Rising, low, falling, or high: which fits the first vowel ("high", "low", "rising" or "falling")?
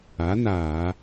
rising